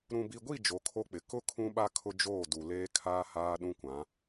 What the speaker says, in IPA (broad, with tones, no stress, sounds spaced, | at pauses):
ɾ ũ˨ b i˨ ɡʷ i˦˨ d͡ʒ o˨˦ kʰ o˦ k͡p ɪ˨ k ʊ˦ kʰ ũ˦ ɓ a˦ kʰ ʊ˦ d͡ʒ oː˦˨ d u˨ l eː˦ kʰ aː˦ h aː˦ ɗ ũ˦ kʷ ã˨˦